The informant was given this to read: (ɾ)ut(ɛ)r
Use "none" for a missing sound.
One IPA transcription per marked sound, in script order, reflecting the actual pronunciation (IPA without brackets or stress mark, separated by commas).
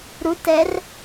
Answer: ɾ, ɛ